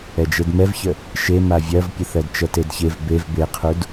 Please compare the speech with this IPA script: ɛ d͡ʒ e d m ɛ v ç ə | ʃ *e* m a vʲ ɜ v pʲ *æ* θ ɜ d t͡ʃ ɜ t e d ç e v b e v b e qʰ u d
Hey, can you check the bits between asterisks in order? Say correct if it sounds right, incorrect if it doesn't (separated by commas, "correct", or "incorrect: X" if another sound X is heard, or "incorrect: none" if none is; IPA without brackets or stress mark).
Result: correct, incorrect: ə